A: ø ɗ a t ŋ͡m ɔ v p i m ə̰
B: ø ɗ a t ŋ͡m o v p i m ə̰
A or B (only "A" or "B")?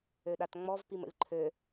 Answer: A